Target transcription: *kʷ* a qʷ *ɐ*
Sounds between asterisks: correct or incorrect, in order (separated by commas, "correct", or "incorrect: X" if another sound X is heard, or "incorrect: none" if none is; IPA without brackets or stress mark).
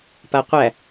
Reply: incorrect: p, incorrect: æ